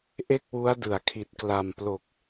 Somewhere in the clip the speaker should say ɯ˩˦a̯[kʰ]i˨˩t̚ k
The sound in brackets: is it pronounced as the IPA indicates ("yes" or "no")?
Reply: yes